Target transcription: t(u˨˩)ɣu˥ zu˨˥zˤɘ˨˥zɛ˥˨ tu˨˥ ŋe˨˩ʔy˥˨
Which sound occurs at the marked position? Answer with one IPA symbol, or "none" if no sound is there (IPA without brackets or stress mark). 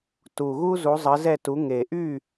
u˨˩